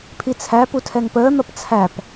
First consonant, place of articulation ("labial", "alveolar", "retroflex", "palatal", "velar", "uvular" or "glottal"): labial